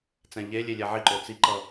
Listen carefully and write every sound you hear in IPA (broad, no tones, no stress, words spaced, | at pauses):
t͡sɛ̃ʎelʲe lʲɛʕiǃo t͡siǃʌ